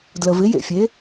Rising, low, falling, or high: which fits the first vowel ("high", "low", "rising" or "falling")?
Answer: low